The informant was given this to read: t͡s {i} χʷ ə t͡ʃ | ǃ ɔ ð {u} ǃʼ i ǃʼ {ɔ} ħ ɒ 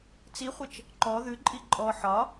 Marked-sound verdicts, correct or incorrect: correct, incorrect: ʉ, correct

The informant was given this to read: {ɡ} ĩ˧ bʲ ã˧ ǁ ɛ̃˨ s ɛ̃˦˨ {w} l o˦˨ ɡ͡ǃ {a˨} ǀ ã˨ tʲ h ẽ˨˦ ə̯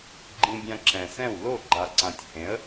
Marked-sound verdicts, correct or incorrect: incorrect: ɡ͡ǃ, correct, correct

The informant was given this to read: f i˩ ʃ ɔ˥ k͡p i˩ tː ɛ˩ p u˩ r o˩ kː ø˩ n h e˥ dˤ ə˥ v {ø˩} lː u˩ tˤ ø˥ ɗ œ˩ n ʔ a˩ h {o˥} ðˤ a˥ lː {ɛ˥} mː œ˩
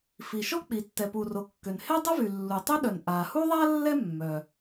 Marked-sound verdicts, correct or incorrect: incorrect: y˩, incorrect: u˥, correct

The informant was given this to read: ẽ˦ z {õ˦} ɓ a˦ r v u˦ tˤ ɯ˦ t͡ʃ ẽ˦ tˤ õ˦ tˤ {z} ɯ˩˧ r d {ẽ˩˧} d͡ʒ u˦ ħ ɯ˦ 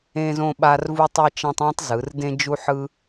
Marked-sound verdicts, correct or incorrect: correct, correct, incorrect: ẽ˦

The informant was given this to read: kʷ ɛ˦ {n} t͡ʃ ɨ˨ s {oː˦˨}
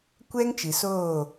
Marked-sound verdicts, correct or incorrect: incorrect: ŋ, correct

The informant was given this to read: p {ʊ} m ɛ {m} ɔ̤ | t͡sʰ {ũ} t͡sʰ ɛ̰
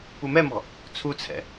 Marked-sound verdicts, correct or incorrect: incorrect: u, correct, incorrect: u

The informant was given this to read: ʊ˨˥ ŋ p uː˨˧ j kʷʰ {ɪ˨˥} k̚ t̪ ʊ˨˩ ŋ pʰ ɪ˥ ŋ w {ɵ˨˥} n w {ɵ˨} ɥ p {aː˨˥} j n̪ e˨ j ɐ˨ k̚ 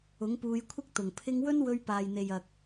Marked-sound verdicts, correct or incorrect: incorrect: ɪ˥, incorrect: ɵ˥, incorrect: ɵ˧, incorrect: aː˨

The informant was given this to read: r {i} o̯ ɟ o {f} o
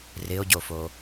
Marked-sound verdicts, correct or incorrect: incorrect: ɪ, correct

